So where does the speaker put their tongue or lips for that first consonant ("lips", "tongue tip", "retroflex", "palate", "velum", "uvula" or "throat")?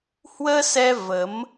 throat